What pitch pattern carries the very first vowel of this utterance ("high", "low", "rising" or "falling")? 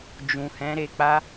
low